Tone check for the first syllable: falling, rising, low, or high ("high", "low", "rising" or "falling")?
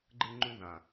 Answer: high